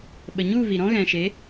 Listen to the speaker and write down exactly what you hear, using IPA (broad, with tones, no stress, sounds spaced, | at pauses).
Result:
ɓ ə˨ ɲ u˦˨ v i˨ ɾ ɔ̃˦ ɣ ɛ̃˨ ʃ e˨˦